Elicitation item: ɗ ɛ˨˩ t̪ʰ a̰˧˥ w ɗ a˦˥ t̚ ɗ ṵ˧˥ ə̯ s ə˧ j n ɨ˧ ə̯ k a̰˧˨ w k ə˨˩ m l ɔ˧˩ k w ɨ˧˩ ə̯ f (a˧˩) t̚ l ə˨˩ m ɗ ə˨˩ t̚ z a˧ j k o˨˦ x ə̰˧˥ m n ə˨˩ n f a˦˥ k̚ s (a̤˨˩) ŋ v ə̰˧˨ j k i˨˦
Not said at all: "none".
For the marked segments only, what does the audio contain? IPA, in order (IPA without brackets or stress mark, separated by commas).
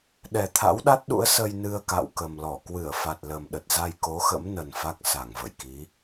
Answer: a˨˩, a˧˩